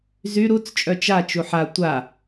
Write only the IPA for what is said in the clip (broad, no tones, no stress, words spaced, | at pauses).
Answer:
zy ɾut͡s t͡ʃʼœt͡ʃat͡ʃu ħa tʷa